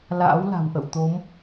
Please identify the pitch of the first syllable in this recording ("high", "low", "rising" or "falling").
rising